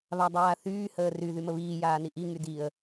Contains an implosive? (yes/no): no